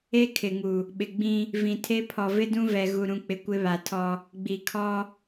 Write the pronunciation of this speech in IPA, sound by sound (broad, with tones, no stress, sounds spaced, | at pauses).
e˦ kʰ ɪ˨ ŋ u˨ | ɓ ɪ˨ ɡ͡b ĩ˦ | v ĩ˨ tʰ e˦ pʰ ɔ˨ v ɪ˦ d ũ˦ v ɛ˨ ɣ u˨ ɾ ũ˨ k͡p ɪ˨ kʷ ɪ˦ β a˨ tʰ ɔ˦ | ɡ͡b i˨ kʰ ɔ˦